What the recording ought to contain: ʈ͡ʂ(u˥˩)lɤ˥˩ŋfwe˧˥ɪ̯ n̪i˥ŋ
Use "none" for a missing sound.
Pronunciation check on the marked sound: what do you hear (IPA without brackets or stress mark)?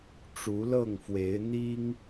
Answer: u˧˥